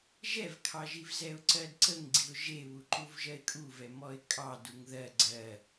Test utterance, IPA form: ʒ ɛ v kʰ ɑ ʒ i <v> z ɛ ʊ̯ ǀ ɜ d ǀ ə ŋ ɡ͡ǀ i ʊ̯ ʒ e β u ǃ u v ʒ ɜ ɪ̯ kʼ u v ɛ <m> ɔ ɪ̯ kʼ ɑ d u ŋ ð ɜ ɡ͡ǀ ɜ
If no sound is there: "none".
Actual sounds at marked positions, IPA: v, m

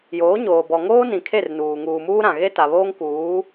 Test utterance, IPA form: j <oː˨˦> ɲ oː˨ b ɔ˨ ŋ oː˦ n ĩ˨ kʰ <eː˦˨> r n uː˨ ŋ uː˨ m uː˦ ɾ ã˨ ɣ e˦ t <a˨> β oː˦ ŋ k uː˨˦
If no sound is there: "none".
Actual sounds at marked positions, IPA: oː˨˦, e˦˨, a˨

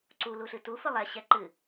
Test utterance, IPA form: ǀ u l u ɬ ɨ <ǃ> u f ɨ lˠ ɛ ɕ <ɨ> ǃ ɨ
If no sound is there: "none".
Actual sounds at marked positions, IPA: t, ɛ

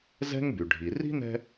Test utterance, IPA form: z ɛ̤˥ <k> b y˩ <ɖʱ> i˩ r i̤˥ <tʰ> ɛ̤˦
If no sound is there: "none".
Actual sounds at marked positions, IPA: ŋ, ɖʱ, n

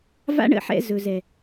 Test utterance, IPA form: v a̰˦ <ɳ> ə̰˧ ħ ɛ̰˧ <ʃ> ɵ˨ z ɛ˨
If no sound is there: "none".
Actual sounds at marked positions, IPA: ɳ, z

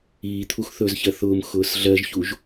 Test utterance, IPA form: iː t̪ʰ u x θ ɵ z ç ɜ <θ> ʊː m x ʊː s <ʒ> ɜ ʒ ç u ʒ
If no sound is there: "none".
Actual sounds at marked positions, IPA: θ, ɮ

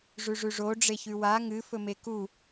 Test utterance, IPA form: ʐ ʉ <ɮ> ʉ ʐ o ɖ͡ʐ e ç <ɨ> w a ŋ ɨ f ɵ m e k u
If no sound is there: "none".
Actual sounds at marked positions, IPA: ʐ, ʉ

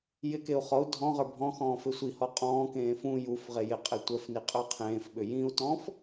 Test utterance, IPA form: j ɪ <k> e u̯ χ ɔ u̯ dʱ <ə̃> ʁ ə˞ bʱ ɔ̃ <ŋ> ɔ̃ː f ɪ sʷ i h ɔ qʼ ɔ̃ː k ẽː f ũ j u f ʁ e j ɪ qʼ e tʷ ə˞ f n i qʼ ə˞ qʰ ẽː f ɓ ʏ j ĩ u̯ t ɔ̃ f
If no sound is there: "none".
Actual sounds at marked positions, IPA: k, ɔ̃, x

